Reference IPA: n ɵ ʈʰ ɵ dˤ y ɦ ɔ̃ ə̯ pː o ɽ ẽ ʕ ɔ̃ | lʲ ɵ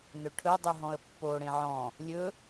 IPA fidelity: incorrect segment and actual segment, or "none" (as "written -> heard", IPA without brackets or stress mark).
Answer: none